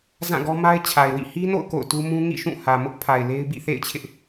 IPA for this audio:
z ã˦˨ ɡ ɔ˦ m a˦ ɪ̯ t͡ɕʰ a˨ ɪ̯ w ḭ˦˨ h i˦ n o̰˦˨ ʊ̯ k o̰˦˨ ʊ̯ t u˦ m ũ˦ ŋ ḭ˦˨ ʃ ũ˦˨ h ä˨ m ʊ˦ ʔ pʰ a˨ ɪ̯ l e˦ ɪ̯ b ḭ˦˨ θ ḛ˦˨ ɪ̯ t͡ɕʰ ɪ˦ ʔ

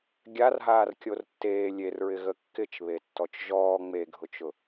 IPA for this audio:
ɡʲ a r ɦ aː r kʲ o r tː eː lʲ e r ɹ ɪ ɣ ə kː ɪ t͡ʃ β e tː ɔ t͡ʃ ʒ ɔː ŋ͡m e ɡʱ ʊ t͡ʃ ʊ

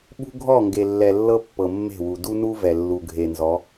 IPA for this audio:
ɓ ṳ˦ ɡʱ ɔ˦˨ ŋ ɡ e˨ lː ɛ˨ lː ɤ˦ pː ɤ˨ mː e̤˦˨ w u˨ d u˦ n u˦ v ɛ˨ lː u˨ ɡʱ e˨ n z ɔ˨˦

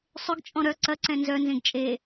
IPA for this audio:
sˤ ʏ ɡ t͡ʃʼ ɔ̃ ɾ œ ǀ ɐ ǀ ɛ̃ n z œ n z ẽ ɡ t͡ʃʼ e

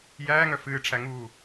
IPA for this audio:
j æː ŋ œ f ɨː ʈ͡ʂʰ æ ŋ uː

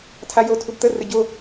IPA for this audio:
tʰ a j o tʰ u b t̪ ə r ɘ ɟ o

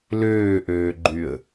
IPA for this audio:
l øː ʔ øː ɡ͡ǃ y ə̯

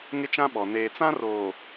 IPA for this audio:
ŋ ɪ˦ t͡ʃ ã˦ ɓ ɔ˨ n eː˨ t͡s ã˦ r oː˨

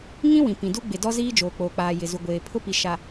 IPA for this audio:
ŋ ĩ˦ w ĩ˨ p ĩ˨ d u˦ ɡ͡b ɪ˨ d ɔ˦ z iː˦ d͡ʒ oː˨ k͡p oː˨ k͡p aː˨ j ɪ˨ z u˨ ɡʷ eː˨ pʰ ʊ˦ p i˨ ʃ a˨

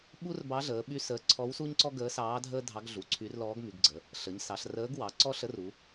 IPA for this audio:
ɓ u˥ r b ɑ˧˥ ɮ əː˩˧ ɓ y˥ s əː˧˥ ǀʰ ɔ˧˥ w s u˥ ɲ ǀ ɔ˥ ɡ əː˧˥ s ɑː˧˥ dʱ əː˥ dʱ ɑ˧˥ ɡ ɮ u˩˧ ǀʰ y˧˥ r l ɔː˧˥ ɡ m y˩˧ ɡ ɡ͡ǀ ə˩˧ | ɬ ə˩˧ ɲ s ɑ˩˧ ɬ r əː˧˥ ɡ w ɑ˩˧ ǀ ɔ˥ ɬ ə˧˥ r u˩˧

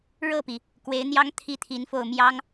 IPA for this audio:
ɻ ɤ˥˩ p i˩ | k w e˧˥ ɪ̯ n̪ j ɑ˥ ŋ t̪ʰ i˥˩ t̪ʰ i˧˥ n f o˥˩ ʊ̯ m j ɑ˥ ŋ

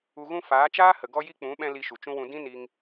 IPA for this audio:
u˨ ɣ ũ˧ f aː˨˦ t͡ʃ aː˦ h ə˨ ɡ ɔ˧ j i˧ k͡p ũ˨˦ ɓ ɛ̃˧ l i˧ ʃ u˨ t͡ʃ ũ˦ w ũ˧ d ĩ˦ n i˧ ŋ

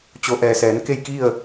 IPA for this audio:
t͡ɕ o˩˧ ʔ ɛː˩ s ɛː˩˧ n k e˥˨ j k i˥˨ ə̯

